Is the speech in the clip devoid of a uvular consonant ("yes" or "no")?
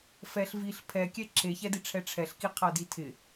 no